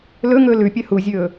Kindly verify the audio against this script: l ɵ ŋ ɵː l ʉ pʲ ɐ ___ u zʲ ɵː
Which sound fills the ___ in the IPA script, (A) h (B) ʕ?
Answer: A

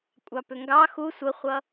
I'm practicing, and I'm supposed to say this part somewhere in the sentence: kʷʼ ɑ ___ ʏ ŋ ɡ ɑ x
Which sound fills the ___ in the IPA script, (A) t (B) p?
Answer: B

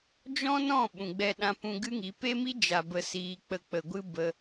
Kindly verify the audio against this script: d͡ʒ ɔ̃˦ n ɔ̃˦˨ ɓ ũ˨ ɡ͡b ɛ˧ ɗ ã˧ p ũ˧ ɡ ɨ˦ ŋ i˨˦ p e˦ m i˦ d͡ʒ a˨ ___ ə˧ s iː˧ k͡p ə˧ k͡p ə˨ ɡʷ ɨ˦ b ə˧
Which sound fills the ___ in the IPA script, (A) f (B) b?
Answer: B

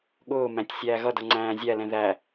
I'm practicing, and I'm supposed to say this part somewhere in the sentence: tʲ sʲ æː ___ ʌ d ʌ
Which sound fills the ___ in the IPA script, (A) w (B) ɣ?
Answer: B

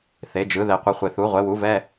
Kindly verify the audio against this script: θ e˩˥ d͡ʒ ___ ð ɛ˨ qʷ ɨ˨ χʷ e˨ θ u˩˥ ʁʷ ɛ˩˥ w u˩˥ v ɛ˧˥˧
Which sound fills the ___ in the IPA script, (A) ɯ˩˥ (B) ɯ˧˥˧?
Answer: A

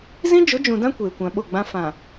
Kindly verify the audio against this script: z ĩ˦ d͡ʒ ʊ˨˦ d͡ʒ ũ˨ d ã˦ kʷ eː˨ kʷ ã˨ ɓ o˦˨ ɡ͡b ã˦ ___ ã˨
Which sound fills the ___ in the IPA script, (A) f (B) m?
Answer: A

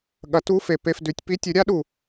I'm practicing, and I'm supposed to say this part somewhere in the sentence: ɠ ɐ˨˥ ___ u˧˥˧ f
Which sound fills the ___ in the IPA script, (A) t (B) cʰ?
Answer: A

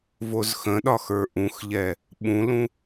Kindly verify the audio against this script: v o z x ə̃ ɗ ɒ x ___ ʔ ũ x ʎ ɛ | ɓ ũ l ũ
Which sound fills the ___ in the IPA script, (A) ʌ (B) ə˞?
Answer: B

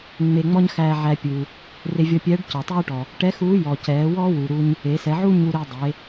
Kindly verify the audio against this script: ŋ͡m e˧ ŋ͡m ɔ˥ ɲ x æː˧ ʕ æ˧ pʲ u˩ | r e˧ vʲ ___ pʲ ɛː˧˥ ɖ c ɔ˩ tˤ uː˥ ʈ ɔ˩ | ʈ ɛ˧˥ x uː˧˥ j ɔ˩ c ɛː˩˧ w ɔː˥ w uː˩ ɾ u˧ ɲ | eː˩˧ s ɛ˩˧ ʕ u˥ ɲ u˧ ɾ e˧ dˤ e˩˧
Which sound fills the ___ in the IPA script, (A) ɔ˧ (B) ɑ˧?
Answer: A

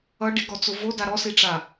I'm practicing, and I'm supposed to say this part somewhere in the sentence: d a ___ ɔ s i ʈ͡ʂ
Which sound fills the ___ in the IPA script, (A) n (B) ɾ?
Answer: B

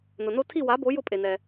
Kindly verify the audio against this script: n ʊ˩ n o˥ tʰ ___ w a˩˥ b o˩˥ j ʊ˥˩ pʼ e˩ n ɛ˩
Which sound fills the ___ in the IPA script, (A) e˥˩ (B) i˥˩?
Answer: B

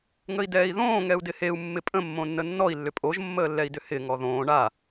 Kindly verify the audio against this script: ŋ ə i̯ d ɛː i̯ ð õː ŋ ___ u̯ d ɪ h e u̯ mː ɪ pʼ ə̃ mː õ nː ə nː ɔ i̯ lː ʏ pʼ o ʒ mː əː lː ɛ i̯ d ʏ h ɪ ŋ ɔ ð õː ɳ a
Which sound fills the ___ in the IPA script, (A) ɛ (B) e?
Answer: A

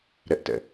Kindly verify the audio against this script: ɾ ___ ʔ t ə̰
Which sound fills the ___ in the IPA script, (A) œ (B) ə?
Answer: B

